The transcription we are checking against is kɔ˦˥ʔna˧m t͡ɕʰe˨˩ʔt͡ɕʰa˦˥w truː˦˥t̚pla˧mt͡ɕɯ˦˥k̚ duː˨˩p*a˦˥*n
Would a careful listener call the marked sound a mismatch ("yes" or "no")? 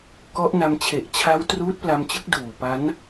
no